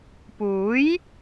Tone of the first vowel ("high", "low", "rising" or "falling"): rising